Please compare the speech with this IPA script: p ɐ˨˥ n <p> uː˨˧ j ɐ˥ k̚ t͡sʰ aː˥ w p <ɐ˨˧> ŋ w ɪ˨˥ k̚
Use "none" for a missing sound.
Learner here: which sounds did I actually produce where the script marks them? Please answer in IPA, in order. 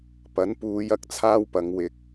p, ɐ˨˧

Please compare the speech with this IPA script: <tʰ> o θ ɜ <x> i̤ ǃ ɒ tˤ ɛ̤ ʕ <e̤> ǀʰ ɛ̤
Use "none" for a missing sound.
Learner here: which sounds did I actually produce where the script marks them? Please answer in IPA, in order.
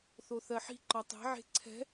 θ, ħ, e̤

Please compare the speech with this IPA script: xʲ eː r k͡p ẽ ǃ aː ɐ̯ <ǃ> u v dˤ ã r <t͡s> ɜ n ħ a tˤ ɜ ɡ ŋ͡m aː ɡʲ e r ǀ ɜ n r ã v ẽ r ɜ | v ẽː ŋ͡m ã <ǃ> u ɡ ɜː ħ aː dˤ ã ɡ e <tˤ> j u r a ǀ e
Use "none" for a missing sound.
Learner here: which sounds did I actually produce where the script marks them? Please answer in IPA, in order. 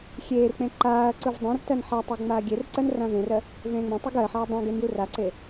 ǀ, t, tˤ, n

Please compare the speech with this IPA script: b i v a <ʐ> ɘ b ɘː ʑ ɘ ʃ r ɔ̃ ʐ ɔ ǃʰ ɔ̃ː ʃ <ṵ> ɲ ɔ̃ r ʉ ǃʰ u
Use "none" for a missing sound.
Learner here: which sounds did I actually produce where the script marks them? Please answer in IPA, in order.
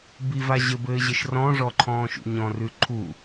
ʑ, ṵ

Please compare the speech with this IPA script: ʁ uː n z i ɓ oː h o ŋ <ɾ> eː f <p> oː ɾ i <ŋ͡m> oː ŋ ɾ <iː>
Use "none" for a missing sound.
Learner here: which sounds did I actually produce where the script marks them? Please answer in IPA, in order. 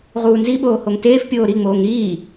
t, pʲ, ŋ͡m, iː

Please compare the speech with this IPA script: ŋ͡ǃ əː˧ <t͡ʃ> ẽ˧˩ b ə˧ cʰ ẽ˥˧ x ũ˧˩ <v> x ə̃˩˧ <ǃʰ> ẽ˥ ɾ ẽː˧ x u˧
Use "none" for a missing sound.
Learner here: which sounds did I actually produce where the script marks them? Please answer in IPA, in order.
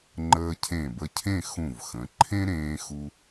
cʰ, v, ǃʰ

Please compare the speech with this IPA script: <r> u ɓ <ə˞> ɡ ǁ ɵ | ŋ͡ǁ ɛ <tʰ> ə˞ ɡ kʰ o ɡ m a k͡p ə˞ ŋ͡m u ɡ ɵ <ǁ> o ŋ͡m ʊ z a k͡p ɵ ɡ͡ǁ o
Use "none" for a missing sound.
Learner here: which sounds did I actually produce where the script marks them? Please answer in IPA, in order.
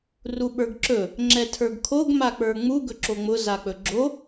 r, ə˞, tʰ, ǁ

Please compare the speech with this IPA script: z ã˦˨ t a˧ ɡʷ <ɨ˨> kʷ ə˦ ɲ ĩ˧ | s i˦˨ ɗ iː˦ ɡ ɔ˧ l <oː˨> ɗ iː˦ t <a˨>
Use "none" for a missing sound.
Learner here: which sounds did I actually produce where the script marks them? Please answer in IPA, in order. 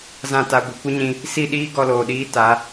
ɨ˨, oː˨, a˨˦

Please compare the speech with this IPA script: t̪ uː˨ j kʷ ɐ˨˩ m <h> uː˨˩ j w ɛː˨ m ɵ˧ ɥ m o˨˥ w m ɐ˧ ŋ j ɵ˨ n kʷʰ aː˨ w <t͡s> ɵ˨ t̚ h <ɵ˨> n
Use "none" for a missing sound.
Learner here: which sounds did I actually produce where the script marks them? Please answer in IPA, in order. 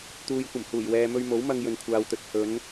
h, t̪, ɵ˨˧

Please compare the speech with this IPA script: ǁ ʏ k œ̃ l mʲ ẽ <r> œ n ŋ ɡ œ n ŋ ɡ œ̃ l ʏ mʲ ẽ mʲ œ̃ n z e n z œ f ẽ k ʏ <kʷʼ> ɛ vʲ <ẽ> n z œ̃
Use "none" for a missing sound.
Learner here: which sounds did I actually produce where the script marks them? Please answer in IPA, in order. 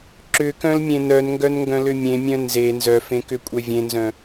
n, kʷʼ, ẽ

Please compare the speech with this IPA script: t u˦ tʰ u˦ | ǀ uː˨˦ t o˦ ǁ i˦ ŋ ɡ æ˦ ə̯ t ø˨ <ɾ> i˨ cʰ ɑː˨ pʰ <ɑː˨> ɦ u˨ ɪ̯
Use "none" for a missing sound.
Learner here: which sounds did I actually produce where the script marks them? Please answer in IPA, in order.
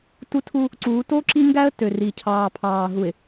r, ɑː˨

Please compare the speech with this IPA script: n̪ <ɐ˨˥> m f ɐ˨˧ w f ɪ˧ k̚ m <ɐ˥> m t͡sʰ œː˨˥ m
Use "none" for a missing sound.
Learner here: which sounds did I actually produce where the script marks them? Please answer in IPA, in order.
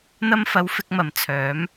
ɐ˧, ɐ˨

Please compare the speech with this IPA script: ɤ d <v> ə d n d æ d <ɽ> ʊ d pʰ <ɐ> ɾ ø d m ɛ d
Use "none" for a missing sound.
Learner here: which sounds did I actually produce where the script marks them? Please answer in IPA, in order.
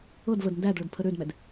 v, ɭ, ə

